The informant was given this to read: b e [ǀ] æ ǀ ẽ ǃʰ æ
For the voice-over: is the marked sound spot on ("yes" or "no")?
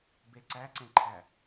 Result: yes